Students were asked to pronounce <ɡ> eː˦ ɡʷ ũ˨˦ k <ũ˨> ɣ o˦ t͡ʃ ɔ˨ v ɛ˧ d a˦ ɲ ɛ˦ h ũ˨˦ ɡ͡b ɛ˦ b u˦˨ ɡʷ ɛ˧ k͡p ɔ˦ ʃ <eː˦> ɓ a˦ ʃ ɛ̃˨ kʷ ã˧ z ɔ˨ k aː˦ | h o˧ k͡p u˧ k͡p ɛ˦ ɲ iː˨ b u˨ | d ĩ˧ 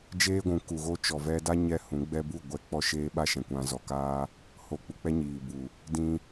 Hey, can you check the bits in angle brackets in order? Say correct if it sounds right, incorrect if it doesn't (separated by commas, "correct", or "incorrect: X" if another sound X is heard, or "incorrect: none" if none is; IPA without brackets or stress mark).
incorrect: d͡ʒ, incorrect: u˨, correct